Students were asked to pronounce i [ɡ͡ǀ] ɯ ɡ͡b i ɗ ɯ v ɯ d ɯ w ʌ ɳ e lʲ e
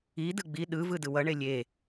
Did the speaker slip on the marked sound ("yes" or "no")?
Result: yes